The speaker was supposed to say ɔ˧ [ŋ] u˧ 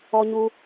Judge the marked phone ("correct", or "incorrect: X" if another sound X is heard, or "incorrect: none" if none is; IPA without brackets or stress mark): incorrect: ɲ